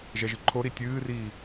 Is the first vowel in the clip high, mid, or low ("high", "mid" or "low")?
mid